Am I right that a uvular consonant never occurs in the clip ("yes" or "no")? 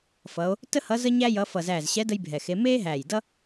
yes